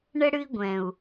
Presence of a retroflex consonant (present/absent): present